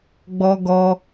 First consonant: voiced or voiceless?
voiced